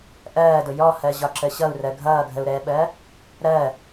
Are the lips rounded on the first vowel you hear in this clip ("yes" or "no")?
no